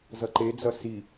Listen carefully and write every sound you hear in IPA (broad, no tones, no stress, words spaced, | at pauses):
zʌǃed͡zʌ si